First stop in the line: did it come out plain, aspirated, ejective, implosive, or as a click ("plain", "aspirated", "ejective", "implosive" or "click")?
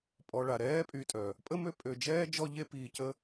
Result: ejective